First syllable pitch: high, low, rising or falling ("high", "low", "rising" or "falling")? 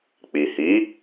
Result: low